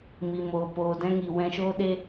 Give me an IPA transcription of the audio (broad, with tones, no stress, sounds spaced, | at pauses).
m i˨ m oː˨ p oː˨ d ɛ̃˧ ŋ i˨ w ɛ̃˧ ʃ oː˦ ɗ e˦